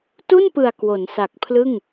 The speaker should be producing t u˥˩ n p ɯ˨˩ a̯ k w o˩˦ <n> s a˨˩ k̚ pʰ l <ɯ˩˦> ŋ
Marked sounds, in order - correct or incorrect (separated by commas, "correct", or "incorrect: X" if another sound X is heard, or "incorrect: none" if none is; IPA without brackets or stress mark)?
correct, incorrect: ɯ˥˩